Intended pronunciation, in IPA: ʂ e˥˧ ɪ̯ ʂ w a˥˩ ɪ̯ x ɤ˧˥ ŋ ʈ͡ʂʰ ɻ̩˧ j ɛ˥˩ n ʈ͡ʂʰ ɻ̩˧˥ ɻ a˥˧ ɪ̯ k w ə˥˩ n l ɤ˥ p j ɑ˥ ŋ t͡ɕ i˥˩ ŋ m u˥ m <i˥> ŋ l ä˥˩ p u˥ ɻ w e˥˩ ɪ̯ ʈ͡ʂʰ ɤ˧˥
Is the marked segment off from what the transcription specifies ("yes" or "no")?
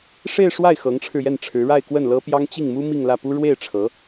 yes